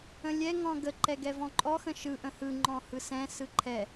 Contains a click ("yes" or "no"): yes